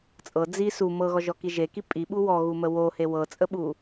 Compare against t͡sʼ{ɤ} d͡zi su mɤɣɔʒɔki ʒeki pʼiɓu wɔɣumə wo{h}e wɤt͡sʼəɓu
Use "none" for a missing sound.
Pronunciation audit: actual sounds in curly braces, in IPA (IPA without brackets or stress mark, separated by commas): ɤ, h